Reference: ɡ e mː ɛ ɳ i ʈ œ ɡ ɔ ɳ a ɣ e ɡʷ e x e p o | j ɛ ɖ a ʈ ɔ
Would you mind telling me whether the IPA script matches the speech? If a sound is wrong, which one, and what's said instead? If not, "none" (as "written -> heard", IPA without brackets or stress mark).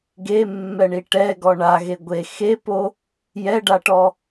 œ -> ɛ